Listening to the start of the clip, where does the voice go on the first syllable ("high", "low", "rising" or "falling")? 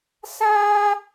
high